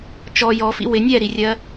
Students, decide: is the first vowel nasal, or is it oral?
oral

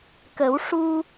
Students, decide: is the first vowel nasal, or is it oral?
oral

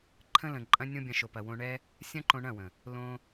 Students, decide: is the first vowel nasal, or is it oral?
nasal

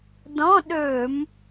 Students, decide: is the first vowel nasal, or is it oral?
nasal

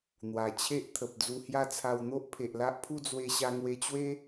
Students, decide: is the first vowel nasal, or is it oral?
oral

